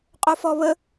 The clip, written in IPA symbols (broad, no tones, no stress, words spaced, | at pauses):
qʼofɔβə